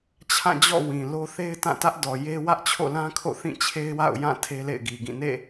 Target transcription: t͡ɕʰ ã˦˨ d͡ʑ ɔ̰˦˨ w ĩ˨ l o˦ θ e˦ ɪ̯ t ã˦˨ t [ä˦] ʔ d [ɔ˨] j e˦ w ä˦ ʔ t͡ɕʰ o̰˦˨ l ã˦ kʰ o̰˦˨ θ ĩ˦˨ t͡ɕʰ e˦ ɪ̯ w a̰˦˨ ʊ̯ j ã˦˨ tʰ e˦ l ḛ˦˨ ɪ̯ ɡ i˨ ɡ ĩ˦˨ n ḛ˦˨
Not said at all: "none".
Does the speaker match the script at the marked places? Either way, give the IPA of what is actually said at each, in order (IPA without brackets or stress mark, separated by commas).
ä˦, ɔ˨